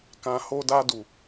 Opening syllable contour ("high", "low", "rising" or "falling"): low